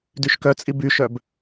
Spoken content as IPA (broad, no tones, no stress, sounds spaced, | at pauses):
d y ʃ k œ t͡sʼ i b y ʃ œ b